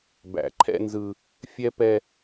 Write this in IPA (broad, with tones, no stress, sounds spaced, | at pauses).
b æ̰˨ ǃʰ ɛ̰˦ n z ɯ˦ | fʲ ɛ˦ p ɛ˦